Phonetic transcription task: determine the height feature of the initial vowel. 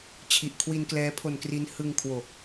high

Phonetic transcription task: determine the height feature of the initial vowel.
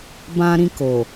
low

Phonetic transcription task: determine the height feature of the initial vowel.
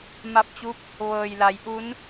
low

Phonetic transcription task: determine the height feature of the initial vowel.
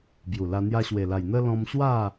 high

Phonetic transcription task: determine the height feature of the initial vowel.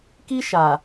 high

